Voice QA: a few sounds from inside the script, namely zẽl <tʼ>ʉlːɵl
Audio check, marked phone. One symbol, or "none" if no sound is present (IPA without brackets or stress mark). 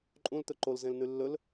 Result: n